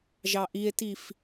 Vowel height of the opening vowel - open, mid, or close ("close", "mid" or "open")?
open